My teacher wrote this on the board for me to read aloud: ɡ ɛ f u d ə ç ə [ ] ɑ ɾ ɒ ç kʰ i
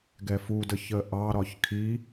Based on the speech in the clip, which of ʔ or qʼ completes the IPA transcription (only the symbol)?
ʔ